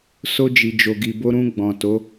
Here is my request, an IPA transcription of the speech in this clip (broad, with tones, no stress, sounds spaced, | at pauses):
s o˧ d͡ʒ i˨ d͡ʒ o˨ ɡ i˨ b o˧ ɾ ũ˧ ɡ͡b ɔ̃˨ t o˨˦